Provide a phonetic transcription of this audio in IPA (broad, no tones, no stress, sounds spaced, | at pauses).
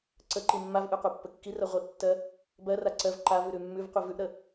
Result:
ǀ ə ǃ i mː a v ʔ ʉ qʷ a pː ə kː i r ɜ ʁʷ i ʔ tː ɜ | b ɜ r a ǀ ɜ v ǃ a v ʉ ɾ ʉ mː ʉ v qʷ i v ʉ ʔ ɾ ə